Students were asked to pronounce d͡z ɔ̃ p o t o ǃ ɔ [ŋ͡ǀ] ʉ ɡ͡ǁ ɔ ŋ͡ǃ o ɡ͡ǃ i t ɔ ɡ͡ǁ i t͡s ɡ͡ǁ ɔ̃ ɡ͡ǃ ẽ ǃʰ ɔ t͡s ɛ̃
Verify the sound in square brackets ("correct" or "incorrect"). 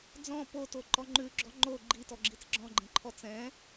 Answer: incorrect